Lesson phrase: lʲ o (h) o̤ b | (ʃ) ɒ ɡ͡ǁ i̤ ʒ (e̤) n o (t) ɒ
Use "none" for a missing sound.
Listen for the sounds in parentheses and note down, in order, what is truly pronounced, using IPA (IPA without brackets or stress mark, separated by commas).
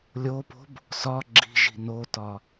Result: p, s, i̤, t